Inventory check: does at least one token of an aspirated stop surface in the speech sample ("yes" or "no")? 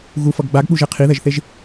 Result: yes